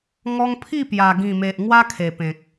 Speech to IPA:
ŋ ɔ˧ ŋ pʰ i˥˧ p j a˨˩ ɡ ĩ˨˩ m e˨ ʔ ŋ w a˦ kʰ e˨˩ p ẽ˨ k̚

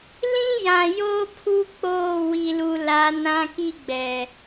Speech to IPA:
l ĩ˦ j ã˨ j oː˦ pʰ u˦ k͡p oː˦˨ w i˨ l u˨ l a˨˦ n ã˦ k i˦ ɡ͡b ɛ˨

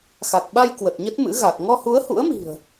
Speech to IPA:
x a˨˩ k̚ ɓ a˧ j k w ə˨˩ t̚ ɲ ə˦˥ t̚ m ɨ̰˧˥ ɣ a˨˩ k̚ ŋ ɔ˧ h u˨˦ ə̯ h ṵ˧˥ ə̯ m i̤˨˩ ə̯

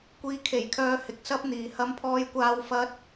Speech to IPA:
kʷ iː˨˧ kʰ e˨˩ j kʰ œː˧ h ɪ˨ k̚ s ɐ˥ p̚ n̪ iː˨ h ɐ˥ m pʰ ɔː˥ j kʷ aː˥ w f ɐ˥ t̚

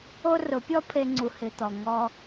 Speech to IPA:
o˦ r ʊ˨˦ pʲ ɔ˦ pʰ e˧ ŋ͡ǀ u˨ h ɪ˨ t̪ ɔ˨ ŋ ɔ˧

